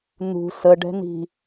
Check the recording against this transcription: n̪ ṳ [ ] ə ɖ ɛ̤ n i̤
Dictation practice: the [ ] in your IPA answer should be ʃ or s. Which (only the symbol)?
s